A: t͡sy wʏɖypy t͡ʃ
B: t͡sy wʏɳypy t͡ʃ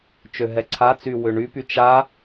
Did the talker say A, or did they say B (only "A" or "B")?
B